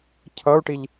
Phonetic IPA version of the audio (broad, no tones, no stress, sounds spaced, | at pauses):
cʰ ʌ u̯ ʈ i ʎ